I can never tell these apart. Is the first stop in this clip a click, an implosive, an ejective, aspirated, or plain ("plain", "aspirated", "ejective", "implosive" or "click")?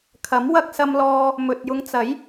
aspirated